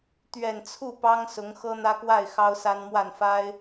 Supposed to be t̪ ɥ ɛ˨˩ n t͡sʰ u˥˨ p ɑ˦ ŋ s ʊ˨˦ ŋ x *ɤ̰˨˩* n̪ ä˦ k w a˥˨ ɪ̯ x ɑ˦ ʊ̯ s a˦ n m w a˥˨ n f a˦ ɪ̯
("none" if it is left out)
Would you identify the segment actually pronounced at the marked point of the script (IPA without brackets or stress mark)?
ɤ˦